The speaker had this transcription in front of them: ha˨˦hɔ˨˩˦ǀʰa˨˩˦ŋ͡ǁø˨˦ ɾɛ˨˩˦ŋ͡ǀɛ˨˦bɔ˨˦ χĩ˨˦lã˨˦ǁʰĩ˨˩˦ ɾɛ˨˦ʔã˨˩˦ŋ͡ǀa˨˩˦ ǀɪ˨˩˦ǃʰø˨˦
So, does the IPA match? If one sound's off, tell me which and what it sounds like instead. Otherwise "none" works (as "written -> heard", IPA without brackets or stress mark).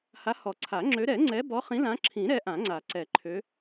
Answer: ɪ˨˩˦ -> ɛ˨˩˦